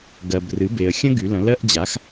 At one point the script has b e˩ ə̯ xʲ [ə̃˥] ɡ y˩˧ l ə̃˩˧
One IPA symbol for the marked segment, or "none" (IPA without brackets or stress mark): ə̃˥